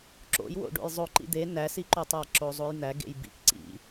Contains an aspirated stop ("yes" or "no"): no